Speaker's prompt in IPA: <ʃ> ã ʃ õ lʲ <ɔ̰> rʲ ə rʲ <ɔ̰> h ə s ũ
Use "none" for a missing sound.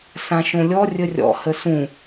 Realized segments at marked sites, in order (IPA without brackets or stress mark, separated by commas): s, ɔ, ɔ̰